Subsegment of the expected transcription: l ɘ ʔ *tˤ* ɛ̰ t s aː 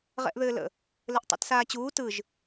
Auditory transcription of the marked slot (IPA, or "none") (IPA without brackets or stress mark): tˤ